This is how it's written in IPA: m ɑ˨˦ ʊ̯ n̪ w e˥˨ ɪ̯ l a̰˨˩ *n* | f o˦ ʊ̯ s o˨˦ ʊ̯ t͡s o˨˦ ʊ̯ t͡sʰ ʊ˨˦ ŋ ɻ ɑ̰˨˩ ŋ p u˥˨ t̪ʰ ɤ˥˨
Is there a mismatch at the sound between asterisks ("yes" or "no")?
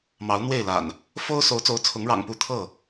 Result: no